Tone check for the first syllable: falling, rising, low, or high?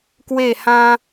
falling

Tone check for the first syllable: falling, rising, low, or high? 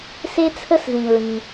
high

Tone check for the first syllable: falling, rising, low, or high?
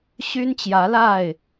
high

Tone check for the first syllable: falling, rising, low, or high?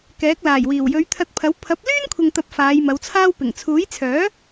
rising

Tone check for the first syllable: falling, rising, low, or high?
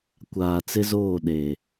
low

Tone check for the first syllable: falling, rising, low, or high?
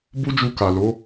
high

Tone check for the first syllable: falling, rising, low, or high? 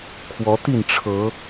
rising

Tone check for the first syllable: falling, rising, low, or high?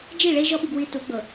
falling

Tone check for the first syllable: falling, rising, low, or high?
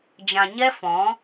low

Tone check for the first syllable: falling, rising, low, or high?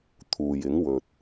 low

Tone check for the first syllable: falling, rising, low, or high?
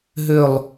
falling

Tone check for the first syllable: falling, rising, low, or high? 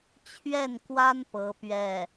falling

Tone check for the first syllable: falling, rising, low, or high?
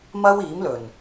high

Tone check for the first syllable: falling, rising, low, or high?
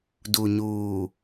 low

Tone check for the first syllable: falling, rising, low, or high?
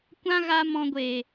high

